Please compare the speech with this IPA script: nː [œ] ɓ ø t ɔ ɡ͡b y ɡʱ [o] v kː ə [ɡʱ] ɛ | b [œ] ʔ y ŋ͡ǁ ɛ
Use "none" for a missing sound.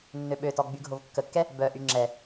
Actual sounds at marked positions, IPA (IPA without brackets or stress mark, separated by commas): ø, o, kː, œ